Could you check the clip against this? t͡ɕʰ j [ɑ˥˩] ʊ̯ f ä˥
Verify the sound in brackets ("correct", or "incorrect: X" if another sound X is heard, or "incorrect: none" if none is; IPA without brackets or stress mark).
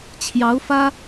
incorrect: ɑ˧˥